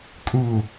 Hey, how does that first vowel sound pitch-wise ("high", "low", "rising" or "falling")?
low